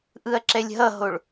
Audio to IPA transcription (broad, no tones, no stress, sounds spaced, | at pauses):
ʔ ɯ ɐ̯ ǁ ɛ lʲ ɦ ʌ ɦ o ɭ